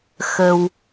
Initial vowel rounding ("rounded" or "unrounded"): unrounded